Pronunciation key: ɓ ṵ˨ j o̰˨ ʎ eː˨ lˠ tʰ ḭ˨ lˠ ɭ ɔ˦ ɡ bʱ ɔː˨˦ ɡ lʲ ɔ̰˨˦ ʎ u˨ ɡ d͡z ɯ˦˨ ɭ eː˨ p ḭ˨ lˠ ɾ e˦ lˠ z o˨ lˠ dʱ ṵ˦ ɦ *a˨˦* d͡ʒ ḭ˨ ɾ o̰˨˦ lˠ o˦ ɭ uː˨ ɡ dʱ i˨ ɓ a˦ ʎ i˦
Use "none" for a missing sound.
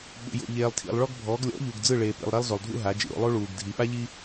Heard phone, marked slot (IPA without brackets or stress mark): a˨˦